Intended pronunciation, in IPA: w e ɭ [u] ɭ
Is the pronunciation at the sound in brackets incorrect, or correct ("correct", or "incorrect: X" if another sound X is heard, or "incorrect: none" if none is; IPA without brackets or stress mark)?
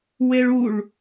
correct